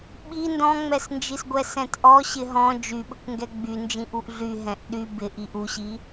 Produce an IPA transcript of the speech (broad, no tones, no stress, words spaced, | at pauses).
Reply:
ɓi ndɔ̃ŋ͡mɛsnd͡ʒisɡʷɛ sɛ̃tʔɔ ɕɪɦɔ̃ d͡ʒyɓəkʷŋɡɛ ɡ͡bynd͡ʒĩʔuʔ ɮy ɦɛ̃ʔɗy bɪ ʔiʔuɕi